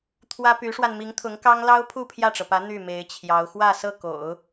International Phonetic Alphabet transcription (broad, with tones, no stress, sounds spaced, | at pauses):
t̪ʰ w ä˥ p y˧˥ ʂ w a˧ n m i˧˥ ŋ t̪ʰ ʊ˧˥ ŋ k ɑ˥ ŋ l ɑ˥ ʊ̯ pʰ u˥˧ pʰ j ä˥˩ ʈ͡ʂ ɤ˩ p ä˧˥ n̪ y˥˩ m e˧˥ ɪ̯ t͡ɕʰ j ɑ˧˥ ʊ̯ x w ä˥˧ s ɤ˥˩ k o̰˨˩˦ ʊ̯